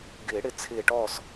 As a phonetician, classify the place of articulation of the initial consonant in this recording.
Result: velar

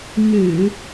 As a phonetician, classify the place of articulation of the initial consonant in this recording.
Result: velar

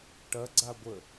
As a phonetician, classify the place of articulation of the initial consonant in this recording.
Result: retroflex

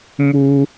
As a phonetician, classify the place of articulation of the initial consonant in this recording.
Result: labial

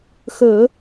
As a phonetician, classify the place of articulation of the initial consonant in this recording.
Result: velar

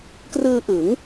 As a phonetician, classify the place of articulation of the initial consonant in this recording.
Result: velar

